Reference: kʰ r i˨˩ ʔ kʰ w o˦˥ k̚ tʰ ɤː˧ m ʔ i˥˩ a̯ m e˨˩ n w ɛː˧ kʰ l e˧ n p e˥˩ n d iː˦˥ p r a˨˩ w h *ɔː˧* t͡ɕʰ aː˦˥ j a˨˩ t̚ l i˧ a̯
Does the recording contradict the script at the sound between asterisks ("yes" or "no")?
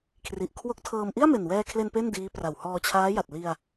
no